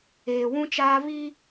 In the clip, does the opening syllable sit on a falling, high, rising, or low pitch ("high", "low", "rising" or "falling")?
low